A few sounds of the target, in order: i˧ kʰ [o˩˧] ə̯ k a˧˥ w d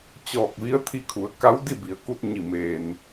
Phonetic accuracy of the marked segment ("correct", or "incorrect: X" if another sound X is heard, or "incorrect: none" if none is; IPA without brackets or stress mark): incorrect: u˩˧